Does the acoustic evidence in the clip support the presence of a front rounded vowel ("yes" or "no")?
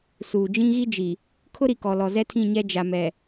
no